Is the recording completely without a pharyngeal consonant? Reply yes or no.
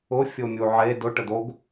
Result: no